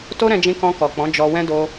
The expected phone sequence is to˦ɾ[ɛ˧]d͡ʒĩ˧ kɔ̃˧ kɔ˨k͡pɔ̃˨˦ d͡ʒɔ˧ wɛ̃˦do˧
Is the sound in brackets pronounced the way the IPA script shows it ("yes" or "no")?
no